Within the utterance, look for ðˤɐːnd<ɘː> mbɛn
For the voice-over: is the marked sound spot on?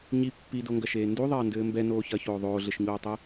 yes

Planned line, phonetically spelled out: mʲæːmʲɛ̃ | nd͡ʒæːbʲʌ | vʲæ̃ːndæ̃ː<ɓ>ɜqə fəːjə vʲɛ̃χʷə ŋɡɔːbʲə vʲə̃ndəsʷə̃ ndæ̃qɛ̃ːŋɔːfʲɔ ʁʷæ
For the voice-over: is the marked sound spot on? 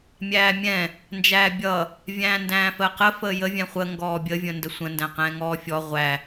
no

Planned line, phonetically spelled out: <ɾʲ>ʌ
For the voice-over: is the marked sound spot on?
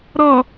no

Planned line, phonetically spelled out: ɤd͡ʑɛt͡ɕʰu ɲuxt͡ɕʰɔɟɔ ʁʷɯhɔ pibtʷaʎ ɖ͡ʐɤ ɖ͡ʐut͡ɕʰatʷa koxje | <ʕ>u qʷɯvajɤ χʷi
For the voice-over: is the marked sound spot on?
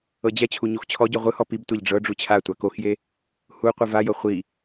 no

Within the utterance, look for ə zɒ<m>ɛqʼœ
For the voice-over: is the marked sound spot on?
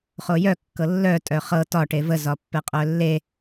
no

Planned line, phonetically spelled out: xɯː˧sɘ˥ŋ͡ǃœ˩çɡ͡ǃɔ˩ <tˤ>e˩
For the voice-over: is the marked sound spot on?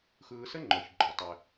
yes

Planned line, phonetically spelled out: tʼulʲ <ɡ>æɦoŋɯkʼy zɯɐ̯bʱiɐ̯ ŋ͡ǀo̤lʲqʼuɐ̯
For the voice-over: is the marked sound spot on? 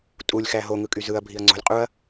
no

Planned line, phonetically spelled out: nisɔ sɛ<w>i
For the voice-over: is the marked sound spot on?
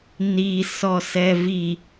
no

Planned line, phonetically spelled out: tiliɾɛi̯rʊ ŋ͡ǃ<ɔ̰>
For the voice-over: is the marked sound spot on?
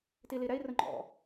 yes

